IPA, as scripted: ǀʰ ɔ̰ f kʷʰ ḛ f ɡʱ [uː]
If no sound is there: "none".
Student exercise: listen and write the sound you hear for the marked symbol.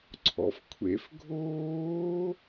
oː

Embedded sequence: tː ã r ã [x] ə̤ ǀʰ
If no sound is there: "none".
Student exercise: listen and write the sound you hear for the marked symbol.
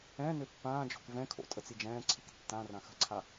x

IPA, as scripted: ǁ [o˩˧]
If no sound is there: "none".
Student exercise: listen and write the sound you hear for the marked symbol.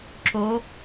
o˩˧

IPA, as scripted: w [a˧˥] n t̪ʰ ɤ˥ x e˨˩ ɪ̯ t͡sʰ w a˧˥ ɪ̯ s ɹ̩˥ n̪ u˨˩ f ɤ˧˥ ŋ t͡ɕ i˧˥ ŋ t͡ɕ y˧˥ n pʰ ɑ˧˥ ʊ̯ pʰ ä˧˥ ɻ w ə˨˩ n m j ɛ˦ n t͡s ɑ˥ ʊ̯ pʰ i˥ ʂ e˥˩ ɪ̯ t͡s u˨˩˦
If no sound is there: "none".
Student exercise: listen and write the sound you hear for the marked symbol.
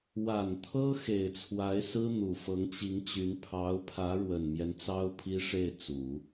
a˨˩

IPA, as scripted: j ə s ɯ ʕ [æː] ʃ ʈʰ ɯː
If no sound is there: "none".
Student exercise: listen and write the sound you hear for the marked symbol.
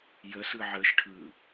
əː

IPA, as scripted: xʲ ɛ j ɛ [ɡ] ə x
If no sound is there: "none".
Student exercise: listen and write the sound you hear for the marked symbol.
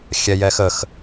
x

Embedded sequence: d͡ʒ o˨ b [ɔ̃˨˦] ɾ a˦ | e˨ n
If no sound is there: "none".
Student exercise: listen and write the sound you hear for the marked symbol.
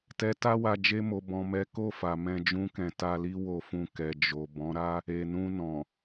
ɔ̃˨˦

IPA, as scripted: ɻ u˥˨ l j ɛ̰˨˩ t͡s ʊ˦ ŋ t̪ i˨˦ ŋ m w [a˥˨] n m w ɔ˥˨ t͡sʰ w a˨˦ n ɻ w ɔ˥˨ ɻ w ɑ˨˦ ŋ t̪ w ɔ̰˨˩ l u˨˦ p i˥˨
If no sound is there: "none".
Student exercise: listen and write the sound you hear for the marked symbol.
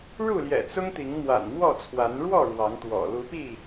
a̰˨˩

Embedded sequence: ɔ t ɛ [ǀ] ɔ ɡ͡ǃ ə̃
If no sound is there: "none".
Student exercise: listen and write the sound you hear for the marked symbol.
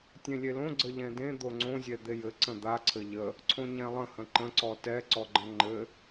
ǀ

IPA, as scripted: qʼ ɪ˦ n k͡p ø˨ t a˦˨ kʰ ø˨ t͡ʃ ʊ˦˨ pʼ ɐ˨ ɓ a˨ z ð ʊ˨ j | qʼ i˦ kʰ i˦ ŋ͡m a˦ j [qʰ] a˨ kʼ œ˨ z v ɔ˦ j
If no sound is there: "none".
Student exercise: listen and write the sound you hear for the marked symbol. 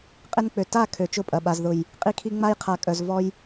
qʰ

